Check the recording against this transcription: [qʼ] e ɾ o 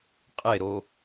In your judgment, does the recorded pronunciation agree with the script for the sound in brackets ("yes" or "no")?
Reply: yes